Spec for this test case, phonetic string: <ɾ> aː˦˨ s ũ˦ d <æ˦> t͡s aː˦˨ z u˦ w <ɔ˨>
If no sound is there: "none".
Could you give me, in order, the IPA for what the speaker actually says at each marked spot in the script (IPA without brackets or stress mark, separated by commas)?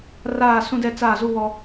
r, ɛ˦, ɔ˦